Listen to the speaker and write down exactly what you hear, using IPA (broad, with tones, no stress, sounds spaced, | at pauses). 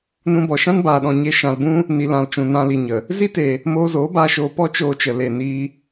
n ũ˧ b ɔ˨ ʃ ã˦ n b aː˨ ɗ ɔ̃˨ ɲ e˧ ʃ ã˧ l b ũ˦ | n i˨ l ã˨ l t͡ʃ ũ˨ n ã˧ l i˨ ɲ ə˨ | z i˦ t e˨ | m oː˧ z oː˨˦ b aː˧ ʃ oː˧ p ɔ˦ t͡ʃ oː˧ t͡ʃ ə˨ l e˨ n iː˧